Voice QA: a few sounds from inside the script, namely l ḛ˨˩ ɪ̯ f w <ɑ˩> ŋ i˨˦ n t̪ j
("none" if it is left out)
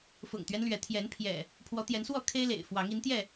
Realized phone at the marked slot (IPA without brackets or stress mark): ɑ˨˦